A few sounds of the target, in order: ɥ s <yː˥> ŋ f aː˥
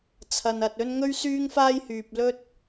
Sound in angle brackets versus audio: correct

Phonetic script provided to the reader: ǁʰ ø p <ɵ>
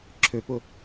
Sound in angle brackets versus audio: incorrect: ʊ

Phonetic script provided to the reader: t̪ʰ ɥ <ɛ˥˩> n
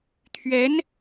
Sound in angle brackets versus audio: incorrect: ɛ˧˥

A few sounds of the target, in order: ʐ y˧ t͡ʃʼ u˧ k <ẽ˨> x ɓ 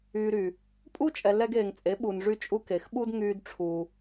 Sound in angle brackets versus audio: incorrect: e˨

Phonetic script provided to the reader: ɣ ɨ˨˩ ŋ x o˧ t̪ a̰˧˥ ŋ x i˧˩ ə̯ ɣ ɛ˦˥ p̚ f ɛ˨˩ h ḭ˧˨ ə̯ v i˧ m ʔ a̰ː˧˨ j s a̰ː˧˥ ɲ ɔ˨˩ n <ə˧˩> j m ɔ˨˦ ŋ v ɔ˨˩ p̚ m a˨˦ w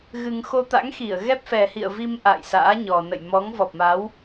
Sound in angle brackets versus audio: incorrect: ə̰˧˨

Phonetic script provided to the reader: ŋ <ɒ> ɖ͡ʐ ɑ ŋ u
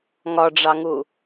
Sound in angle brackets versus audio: correct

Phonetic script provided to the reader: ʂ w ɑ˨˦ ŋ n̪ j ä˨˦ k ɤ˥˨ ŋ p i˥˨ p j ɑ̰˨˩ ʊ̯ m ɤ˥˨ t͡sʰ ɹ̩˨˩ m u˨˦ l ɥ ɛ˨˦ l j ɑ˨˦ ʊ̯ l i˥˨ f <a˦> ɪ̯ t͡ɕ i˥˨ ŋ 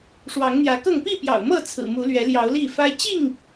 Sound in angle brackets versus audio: correct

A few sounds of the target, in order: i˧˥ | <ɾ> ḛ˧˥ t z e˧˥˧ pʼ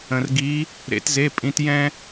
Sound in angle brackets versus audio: correct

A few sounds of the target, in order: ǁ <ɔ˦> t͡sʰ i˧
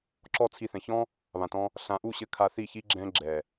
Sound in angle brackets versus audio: correct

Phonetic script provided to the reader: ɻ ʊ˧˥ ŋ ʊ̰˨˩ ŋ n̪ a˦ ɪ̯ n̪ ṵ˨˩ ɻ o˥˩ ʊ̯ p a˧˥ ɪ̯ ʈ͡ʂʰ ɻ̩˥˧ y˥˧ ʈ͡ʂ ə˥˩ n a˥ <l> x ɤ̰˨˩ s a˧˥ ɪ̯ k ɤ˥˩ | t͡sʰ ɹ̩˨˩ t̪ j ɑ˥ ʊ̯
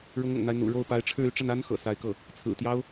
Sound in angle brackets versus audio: incorrect: n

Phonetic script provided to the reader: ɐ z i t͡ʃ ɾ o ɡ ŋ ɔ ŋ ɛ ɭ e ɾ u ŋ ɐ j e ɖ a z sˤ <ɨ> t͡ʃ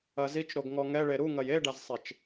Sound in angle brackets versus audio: incorrect: e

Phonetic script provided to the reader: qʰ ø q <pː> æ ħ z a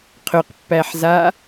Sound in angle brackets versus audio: correct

